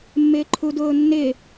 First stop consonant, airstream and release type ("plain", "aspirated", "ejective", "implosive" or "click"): click